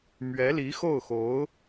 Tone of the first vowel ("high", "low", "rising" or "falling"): rising